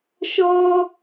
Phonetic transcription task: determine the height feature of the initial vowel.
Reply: mid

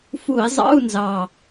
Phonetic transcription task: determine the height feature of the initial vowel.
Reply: high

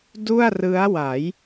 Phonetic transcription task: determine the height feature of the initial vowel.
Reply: high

